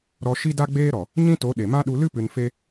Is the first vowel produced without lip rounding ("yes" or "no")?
no